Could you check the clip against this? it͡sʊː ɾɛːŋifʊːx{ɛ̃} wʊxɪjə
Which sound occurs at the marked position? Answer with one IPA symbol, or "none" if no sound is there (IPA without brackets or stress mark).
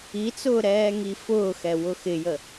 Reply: ɛ